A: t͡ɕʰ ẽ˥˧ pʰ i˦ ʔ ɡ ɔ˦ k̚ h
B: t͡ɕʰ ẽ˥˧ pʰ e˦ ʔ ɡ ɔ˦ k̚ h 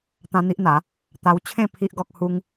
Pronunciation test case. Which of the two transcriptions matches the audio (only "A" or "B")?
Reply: A